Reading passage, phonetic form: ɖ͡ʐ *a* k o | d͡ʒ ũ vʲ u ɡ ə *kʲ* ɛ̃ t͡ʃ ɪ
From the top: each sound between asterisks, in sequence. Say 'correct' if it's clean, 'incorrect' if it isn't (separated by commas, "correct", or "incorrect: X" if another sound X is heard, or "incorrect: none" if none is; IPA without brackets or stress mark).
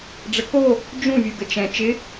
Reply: incorrect: ə, incorrect: t͡ʃ